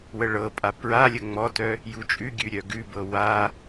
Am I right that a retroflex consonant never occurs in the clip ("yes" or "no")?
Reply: no